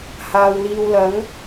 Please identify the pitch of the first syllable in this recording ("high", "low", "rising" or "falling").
low